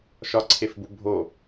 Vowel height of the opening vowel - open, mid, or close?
open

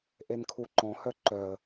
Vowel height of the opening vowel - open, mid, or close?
mid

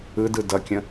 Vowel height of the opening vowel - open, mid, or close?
close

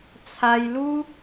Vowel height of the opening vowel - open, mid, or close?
open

